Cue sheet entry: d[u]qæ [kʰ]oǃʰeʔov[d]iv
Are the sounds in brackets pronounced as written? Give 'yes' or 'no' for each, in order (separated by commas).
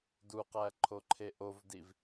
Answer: yes, no, yes